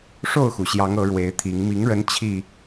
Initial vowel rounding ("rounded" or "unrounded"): rounded